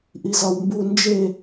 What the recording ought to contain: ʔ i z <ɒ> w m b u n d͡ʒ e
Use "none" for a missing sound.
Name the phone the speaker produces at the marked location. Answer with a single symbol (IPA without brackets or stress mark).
ɒ